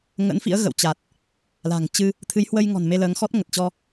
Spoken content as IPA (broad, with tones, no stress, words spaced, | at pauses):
ŋə̰˧˥nfḭ˧˥ə̯ ɣə̰˧˨wt͡ɕa˨˩t̚ | la̤˨˩ŋt͡ɕɨ˧ | t̪ʰɨ˨˦jhwə˧jŋɔ̤˨˩n me˧ləː˨˦ŋxɔ˦˥t̚ ŋə˨˩t̚t͡ɕɔ˧